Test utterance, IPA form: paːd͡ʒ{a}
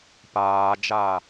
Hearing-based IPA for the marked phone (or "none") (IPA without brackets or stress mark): aː